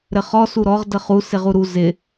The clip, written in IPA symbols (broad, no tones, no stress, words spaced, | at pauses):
ɾɘχɔ suɾɔʁ dəχu sɪʁuɾu zɪ